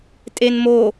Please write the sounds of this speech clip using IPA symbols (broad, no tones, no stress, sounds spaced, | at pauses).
tʼ e n m o